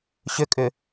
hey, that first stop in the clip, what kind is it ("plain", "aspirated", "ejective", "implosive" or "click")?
ejective